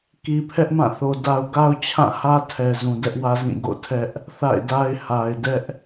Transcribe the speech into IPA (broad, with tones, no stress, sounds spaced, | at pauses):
k i˨ pʰ ɛ˦ ʔ m ã˦˨ θ o˨ d a˨ ʊ̯ ɡ a˦ ʊ̯ t͡ɕʰ ã˦˨ h ä˦ tʰ ɛ˨ z ũ˨ d ɛ˦ ʔ w ä˦ z ĩ˦˨ ɡ o̰˦˨ tʰ ɛ˦ ʔ | θ a̰˦˨ ɪ̯ d a˦ ɪ̯ h a˨ ɪ̯ d ɛ˦ ʔ